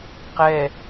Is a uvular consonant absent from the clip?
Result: no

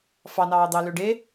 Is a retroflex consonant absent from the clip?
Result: no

